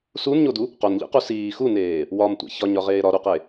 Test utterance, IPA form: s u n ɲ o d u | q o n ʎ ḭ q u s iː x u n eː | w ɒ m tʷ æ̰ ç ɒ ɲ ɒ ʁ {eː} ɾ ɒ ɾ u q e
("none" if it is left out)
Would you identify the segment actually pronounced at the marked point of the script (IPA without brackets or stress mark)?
eː